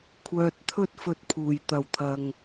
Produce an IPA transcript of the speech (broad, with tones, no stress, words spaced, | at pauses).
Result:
kʷʰœː˨t̚t̪ʰɵ˧t̚ fɵ˧t̚pʰuː˨˩j t̪ɐ˨˩wt̪ʰɐ˨ŋ